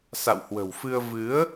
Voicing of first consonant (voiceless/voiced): voiceless